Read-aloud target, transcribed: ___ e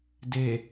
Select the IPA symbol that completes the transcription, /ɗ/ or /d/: d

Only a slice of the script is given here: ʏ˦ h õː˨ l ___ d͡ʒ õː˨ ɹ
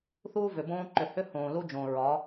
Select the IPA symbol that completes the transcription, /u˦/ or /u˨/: u˦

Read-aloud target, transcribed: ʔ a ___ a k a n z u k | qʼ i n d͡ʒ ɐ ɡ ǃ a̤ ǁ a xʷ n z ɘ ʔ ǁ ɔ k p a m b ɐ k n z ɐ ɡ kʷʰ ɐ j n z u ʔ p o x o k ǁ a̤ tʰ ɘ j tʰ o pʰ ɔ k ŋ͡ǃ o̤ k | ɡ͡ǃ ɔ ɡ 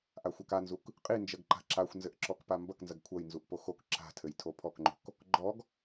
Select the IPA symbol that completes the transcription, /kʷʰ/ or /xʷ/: xʷ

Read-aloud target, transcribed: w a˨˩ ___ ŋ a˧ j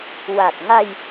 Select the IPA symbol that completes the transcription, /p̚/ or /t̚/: t̚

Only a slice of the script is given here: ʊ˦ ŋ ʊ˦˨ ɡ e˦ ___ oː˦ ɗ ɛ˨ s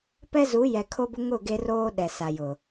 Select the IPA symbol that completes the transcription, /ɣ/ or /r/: r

